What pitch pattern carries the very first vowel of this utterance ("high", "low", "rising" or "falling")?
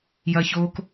high